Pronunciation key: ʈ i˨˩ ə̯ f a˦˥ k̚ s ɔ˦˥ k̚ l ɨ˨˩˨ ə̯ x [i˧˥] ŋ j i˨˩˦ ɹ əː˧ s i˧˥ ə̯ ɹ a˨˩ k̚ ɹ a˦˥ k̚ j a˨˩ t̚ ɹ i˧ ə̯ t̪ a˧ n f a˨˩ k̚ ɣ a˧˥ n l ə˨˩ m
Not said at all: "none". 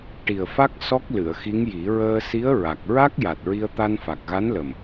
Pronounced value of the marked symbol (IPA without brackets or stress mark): i˧˥